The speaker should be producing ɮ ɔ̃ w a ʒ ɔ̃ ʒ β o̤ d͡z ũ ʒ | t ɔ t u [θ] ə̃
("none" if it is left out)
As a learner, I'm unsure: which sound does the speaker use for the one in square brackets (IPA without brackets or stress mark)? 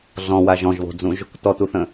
θ